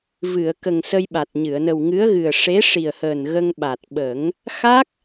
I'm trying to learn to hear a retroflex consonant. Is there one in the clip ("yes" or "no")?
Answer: yes